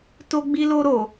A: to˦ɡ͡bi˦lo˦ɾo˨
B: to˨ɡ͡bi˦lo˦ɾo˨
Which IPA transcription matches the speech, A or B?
A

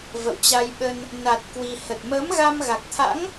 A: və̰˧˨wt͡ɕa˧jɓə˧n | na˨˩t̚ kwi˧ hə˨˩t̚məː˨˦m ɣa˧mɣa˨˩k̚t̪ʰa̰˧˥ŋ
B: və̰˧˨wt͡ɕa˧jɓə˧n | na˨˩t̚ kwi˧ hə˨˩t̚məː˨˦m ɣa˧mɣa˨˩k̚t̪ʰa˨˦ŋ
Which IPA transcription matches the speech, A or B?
A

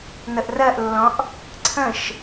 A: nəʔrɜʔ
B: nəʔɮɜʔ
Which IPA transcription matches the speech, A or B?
A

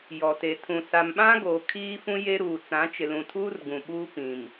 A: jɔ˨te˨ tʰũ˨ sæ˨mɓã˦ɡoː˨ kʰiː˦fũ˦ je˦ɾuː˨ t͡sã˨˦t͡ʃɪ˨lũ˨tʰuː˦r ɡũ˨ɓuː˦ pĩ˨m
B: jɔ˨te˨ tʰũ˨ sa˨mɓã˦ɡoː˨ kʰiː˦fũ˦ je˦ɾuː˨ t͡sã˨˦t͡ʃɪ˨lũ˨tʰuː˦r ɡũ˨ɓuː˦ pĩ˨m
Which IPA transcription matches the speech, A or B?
B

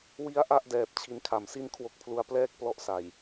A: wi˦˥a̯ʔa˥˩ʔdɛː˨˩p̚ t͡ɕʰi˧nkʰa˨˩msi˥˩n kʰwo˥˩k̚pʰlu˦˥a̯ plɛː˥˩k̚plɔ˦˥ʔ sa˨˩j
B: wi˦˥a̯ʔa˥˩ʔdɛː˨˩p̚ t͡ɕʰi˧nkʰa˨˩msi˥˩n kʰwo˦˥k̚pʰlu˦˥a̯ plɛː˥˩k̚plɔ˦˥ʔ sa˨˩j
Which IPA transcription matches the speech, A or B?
B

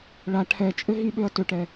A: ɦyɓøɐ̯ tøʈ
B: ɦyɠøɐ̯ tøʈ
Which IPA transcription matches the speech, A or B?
A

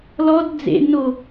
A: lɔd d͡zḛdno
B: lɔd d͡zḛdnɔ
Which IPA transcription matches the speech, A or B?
A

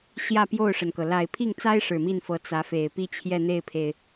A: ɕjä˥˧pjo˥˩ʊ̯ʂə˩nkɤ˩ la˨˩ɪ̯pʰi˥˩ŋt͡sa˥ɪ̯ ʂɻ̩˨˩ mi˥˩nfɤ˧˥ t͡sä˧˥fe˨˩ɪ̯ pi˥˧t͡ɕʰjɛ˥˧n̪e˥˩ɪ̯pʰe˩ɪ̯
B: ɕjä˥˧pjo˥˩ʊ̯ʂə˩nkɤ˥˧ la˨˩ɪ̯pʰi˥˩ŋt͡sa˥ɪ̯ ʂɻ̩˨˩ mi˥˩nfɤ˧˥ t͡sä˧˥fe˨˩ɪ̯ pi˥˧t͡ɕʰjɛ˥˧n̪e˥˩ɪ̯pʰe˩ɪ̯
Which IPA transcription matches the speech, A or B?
A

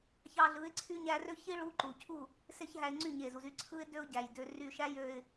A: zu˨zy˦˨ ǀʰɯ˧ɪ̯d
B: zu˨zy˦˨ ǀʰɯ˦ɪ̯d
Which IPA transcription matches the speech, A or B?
B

